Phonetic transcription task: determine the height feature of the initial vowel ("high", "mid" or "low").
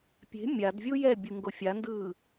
mid